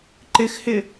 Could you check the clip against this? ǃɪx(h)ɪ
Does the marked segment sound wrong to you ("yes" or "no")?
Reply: no